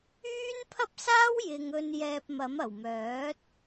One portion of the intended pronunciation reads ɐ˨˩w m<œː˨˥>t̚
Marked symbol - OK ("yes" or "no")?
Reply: yes